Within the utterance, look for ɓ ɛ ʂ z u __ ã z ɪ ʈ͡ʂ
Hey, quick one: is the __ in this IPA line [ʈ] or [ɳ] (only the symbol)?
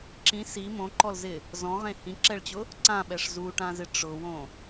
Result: ʈ